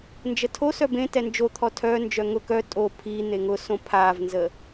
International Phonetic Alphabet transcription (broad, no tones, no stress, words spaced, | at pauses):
nd͡ʒətʰosœ bẽ tɛnd͡ʒot̪ʰɔ tʰœnd͡ʒœ ŋʊ kœ tʼo pʰi n̪eŋʊsõ pʰavnzə